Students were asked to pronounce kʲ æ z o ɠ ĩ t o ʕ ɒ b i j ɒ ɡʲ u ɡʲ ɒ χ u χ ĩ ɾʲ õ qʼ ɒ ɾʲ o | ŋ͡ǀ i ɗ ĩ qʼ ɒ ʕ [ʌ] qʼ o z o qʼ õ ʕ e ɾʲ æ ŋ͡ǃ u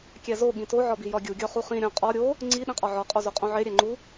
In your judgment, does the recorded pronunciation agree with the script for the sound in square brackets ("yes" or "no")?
no